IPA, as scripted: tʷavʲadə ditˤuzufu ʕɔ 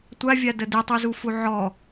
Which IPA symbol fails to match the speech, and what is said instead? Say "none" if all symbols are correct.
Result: none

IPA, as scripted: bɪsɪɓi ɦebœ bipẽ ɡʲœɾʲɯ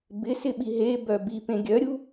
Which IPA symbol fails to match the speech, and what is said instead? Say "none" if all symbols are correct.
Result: ɯ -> u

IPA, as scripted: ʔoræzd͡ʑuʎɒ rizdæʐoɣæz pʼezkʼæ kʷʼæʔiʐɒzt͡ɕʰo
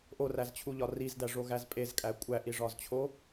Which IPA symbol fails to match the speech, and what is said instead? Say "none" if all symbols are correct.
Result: d͡ʑ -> t͡ɕʰ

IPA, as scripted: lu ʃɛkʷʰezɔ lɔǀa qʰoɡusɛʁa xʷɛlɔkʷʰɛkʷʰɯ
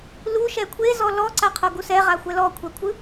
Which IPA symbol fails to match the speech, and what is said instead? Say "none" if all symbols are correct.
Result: none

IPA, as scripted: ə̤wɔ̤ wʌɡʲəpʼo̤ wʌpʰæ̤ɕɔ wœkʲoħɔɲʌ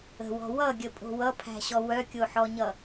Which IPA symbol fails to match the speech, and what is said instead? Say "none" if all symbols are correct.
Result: none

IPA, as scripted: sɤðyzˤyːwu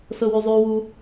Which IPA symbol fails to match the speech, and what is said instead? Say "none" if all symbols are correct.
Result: ð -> w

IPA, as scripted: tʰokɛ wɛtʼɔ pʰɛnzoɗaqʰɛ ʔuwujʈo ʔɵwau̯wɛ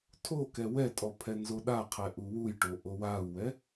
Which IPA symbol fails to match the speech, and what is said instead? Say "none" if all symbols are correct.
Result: ɵ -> o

